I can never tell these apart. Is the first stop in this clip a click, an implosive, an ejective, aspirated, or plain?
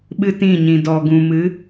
implosive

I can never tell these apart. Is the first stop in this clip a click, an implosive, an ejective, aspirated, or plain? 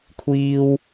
aspirated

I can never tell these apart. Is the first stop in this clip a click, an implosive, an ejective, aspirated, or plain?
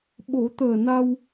implosive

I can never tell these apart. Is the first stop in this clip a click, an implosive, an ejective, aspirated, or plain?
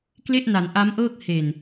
plain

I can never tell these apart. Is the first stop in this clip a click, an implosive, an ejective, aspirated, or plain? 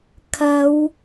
aspirated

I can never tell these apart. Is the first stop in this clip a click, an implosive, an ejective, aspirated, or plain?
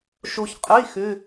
ejective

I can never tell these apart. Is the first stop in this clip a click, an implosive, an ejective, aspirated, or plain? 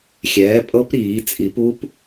ejective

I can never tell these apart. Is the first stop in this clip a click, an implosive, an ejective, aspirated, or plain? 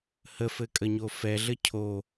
ejective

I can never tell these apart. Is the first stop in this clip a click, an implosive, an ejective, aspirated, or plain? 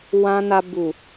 plain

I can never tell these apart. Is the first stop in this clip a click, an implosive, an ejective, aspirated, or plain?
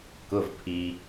plain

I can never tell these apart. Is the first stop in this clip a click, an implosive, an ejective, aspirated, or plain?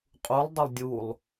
ejective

